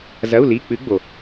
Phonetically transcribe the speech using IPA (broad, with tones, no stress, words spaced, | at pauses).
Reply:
zɐ˧˥˧u̯li˧˥˧ k͡pɨ˧˥ɡ͡bo˨